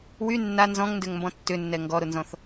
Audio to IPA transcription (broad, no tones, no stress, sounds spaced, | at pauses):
w y nː a n z ɔ̃ ŋ n d ø ŋ m b ɔ̃ tː ʏ nː ɛ ŋ ɡ ɔ ɾ ʊ n z ɔ̃ θ